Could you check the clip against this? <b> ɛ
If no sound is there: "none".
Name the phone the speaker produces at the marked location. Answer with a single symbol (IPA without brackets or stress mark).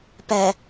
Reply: p